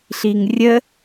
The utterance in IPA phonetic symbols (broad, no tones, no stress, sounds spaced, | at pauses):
ɬ i ŋ rʲ ə